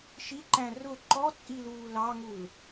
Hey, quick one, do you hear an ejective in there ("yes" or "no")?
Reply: yes